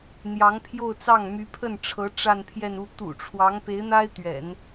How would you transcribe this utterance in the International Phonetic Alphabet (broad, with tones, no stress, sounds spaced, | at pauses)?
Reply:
n̪ j ɑ˧˥ ŋ pʰ j o˥˧ ʊ̯ t͡s ɑ˥˩ ŋ m y˧˥ pʰ ə˥˩ n ʈ͡ʂʰ ɤ˧˥ ʈ͡ʂ a˥˧ n pʰ j ɛ˥˧ n u˥˩ t̪ ṵ˨˩ ʈ͡ʂʰ w ɑ˧˥ ŋ p e˧˥ ɪ̯ n̪ a˥ ɪ̯ t̪ ɥ ɛ̰˨˩˦ n